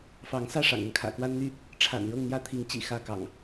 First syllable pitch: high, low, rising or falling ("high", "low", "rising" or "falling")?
rising